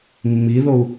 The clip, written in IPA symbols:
mːiðou̯

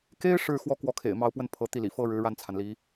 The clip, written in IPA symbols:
ke˥ɪ̯ ʂɻ̩˥˧ xwɔ˥˩ kwɔ˧˥kʰḛ˨˩ɪ̯ mɑ˧˥ʊ̯pwə˥˩n pʰɤ˧˥ t̪i˥˩lḭ˨˩ fɤ˥ ɻɻ̩˧˥ɻa˥˩nt͡sʰa˩nli˧˥

